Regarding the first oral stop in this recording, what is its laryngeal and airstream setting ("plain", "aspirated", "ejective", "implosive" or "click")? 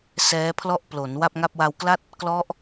aspirated